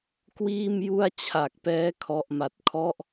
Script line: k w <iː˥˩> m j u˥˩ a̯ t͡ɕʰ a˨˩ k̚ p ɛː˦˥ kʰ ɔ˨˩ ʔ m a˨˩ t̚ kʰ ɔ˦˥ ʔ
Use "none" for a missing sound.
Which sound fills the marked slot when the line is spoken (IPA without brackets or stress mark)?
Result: iː˥˩